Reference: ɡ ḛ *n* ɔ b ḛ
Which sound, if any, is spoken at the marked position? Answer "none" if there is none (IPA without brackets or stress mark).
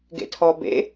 tʰ